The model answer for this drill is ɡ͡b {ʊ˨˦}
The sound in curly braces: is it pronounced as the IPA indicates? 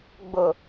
no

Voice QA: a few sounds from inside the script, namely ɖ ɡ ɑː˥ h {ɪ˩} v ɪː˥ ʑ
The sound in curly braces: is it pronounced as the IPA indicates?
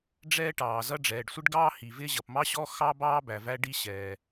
no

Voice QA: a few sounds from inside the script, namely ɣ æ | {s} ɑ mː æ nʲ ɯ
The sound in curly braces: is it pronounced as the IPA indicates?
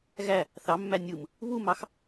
no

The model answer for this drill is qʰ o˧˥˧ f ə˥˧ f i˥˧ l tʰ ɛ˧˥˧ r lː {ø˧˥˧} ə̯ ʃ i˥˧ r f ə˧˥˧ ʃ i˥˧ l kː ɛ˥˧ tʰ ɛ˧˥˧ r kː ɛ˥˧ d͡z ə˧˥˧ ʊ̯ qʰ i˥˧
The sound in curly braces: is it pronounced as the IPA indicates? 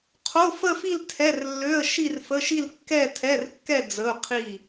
yes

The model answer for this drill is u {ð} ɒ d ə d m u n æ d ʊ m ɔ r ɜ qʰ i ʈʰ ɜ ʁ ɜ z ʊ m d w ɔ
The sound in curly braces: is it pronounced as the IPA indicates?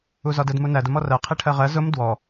no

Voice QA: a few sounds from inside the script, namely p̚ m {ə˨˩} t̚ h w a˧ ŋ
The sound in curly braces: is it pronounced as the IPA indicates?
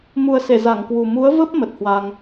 yes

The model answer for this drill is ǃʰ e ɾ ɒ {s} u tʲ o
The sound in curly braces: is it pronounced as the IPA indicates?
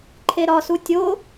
yes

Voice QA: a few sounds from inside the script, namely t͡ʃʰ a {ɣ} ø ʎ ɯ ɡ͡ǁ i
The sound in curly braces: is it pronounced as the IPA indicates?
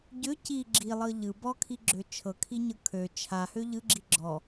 no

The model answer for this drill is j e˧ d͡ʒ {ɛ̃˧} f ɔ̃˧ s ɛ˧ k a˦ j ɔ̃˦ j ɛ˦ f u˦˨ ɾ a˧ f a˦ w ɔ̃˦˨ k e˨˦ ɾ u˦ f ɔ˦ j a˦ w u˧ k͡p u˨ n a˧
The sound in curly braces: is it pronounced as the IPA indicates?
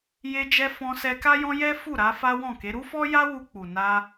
no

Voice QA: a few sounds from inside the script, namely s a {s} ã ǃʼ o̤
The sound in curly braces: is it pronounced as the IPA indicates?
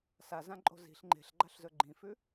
no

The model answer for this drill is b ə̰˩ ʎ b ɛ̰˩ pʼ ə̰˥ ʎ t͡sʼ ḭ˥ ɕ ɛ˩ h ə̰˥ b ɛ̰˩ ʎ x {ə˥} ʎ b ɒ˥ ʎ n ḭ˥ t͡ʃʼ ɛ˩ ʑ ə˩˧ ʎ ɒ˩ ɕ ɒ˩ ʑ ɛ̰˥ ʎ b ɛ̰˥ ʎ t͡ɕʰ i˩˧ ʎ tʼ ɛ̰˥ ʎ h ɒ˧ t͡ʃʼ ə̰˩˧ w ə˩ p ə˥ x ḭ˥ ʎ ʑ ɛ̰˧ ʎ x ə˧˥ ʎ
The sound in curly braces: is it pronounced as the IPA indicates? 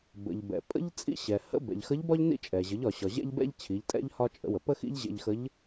no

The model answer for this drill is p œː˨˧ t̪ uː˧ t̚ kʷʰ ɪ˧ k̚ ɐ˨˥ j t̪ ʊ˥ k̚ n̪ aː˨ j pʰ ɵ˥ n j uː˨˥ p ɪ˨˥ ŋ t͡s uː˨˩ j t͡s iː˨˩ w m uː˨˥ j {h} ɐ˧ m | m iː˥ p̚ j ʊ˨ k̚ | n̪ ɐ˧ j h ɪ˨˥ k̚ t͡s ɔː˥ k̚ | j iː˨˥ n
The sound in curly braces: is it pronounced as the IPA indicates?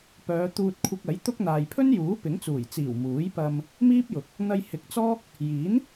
no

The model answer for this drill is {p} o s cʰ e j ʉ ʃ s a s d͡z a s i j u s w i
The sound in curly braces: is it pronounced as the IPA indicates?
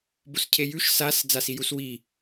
no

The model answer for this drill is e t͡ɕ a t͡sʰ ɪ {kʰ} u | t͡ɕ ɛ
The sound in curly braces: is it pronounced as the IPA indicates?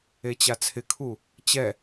yes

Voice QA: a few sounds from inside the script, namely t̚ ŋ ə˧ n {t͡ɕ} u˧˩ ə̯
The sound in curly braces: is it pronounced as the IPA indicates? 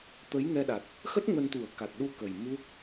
no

